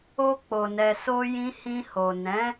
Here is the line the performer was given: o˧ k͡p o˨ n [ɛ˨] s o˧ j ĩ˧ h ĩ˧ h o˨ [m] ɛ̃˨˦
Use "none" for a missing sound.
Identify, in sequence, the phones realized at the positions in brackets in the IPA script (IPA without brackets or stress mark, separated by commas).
ɛ˨, n